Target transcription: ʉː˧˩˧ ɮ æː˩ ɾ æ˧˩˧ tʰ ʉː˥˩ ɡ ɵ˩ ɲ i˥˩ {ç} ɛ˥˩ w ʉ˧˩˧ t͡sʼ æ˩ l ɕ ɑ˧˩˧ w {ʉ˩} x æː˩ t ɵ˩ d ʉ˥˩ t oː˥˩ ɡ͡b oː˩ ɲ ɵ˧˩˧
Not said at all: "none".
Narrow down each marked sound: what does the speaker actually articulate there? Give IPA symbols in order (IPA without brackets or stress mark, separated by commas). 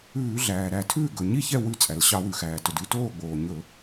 ç, ʉ˩